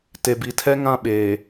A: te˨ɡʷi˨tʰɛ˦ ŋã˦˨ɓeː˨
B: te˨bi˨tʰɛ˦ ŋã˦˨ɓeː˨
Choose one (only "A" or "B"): B